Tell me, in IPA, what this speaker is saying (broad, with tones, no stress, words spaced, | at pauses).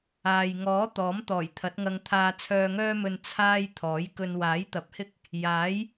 aː˨jŋɔː˨˥ t̪ɔː˨˥mt̪ɔː˨˩jt̪ʰɐ˨˥t̚ŋɐ˧ŋ t̪ʰaː˧t͡sʰœː˧ŋœː˥mɵ˧n t͡sʰaː˥j t̪ʰɔː˨˥jkɵ˧n waː˨˥jt̪ɐ˨˥p̚hɪ˥k̚ | jaː˨˥j